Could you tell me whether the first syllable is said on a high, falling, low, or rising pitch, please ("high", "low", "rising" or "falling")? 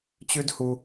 high